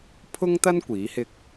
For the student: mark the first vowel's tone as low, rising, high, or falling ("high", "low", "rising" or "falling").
high